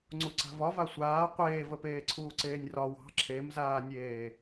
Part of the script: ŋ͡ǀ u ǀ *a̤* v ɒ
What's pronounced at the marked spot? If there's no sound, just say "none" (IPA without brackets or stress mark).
a̤